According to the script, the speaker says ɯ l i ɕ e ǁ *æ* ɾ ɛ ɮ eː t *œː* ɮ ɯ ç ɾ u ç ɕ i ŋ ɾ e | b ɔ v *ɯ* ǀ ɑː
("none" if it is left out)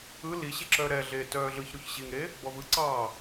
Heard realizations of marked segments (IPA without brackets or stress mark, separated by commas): œ, œː, ɯ